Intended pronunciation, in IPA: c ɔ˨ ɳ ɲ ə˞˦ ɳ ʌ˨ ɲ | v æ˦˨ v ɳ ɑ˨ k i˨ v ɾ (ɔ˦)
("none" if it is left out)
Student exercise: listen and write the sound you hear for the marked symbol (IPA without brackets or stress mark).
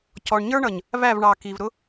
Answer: ʊ˦